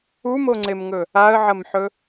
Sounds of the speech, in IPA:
u m o ŋ͡ǀ e m ŋ ɵ | a ə̯ ʕ ɐ m ħ ɵ

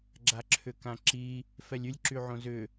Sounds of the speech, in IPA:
ɡ͡ǁ a ǁʰ ʏ k ã ǁ i | f ɛ lʲ y lʲ ǁ y ʕ õ z ʏ

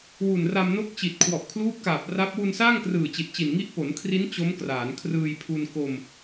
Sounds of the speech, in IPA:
w u˨˩ n r a˧ m n o˦˥ k̚ t͡ɕ i˨˩ t̚ kʰ w ɔ˨˩ ʔ kʰ l uː˦˥ p̚ k aː˨˩ p̚ r a˦˥ p̚ w u˧ n s aː˥˩ ŋ k r ɯː˨˩ t͡ɕ i˨˩ t̚ t͡ɕ i˨˩ n ŋ i˥˩ ʔ p o˩˦ n kʰ r i˦˥ n t͡ɕ o˦˥ m k r aː˩˦ n kʰ r ɯː˧ j pʰ u˧ n k o˧ m

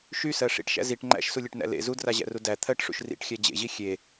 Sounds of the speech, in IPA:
ʃ y s ɜ ʂ ḭ ʈ ʃ æ̰ z i ʈ ŋ͡ǃ æ̰ ʃ s u lʲ e ʈ n æ̰ l ḛ z u d r a ʑ æ̰ r u d æ t̪ʰ ɜ ʈ ʂ ṵ ʃ r ḭ ʈ xʲ æ d͡ʑ ḛ ʑ i xʲ e

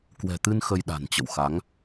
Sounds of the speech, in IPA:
k w ɛ̤˨˩ t̪ ɨ˧ n x ə˧ j ɗ a̤˨˩ n t͡ɕ ə̰˧˨ w x a˨˦ ŋ

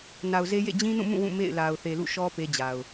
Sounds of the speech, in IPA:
n a˨ ʊ̯ z e˦ j ḛ˦˨ d͡ʑ ĩ˦ n ũ˦˨ m ũ˦˨ w ũ˦˨ m ḛ˦˨ ɪ̯ l a˨ ʊ̯ θ e˨ l ṵ˦˨ ʃ ɔ˦ p e˦ d͡ʑ a˨ ʊ̯

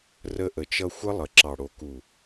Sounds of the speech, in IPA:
r ə˧ ʔ ə˨ t͡ʃ ʌ˧ xʷ ə˦ lˠ ə˨ ǁ ɑ˨ ɽ o˨ k u˨

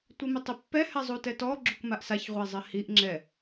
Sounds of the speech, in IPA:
tʷ i m ɪ tˤ ɪ pː ɛ h ɛ zˤ u t ɛ t ɔ ɡ͡ǁ u k m a ʔ s a ç ʁʷ e zˤ ɪ h i ʔ ŋ͡ǁ ɛ

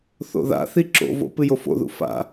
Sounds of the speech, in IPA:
θ o̰ ð a̰ θ i ǁ o̰ v o̰ p ɨ j o f o̰ ð ṵ f a̰

